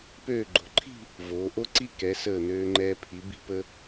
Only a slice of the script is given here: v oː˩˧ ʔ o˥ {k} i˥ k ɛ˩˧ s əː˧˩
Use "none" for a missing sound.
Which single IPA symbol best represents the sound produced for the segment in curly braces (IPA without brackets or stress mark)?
ǀ